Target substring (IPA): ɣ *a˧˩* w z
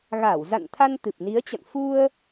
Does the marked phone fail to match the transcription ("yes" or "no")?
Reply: no